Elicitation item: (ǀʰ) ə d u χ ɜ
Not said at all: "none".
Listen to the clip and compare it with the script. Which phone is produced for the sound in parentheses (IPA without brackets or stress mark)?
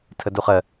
tʰ